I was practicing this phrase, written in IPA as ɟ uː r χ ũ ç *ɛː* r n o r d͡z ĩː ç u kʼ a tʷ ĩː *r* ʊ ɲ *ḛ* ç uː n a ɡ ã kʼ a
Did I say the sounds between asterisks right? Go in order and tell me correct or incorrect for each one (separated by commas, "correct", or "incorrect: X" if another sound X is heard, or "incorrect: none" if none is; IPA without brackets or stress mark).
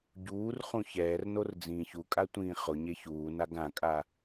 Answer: correct, incorrect: χ, incorrect: e